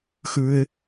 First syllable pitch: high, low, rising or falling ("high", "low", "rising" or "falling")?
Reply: low